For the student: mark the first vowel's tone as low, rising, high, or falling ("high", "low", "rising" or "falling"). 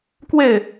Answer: falling